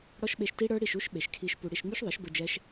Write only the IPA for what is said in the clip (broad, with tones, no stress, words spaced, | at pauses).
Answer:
ɽɔ˦ʃɓe˧ʃ ti˦ɽə˞˦ɽi˦˨ʃu˦ʃ ɓe˨ʃkʰi˧ʃpu˧ ɽi˧ʃ ŋ͡my˦ʃðˤɘ˨˦ʃbɘ˧ d͡ʒɛ˦ʃ